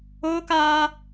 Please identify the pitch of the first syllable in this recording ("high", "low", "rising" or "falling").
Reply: high